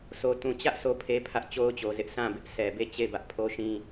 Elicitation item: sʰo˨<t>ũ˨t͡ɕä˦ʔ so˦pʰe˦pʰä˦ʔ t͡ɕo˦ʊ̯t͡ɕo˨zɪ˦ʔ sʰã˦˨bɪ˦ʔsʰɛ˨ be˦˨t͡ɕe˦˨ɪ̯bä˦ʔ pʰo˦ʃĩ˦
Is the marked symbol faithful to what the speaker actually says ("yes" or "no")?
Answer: yes